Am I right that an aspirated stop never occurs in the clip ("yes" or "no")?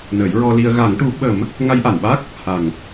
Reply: yes